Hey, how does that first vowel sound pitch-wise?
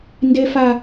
high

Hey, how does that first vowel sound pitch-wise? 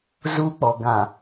high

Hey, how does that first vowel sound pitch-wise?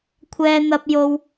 high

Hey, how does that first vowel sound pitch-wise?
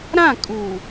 falling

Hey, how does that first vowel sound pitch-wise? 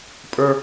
high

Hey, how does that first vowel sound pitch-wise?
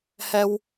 high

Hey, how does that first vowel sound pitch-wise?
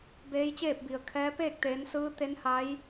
rising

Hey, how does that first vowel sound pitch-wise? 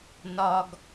low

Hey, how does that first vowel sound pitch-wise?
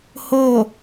falling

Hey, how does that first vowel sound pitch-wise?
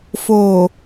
low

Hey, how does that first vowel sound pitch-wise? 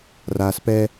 low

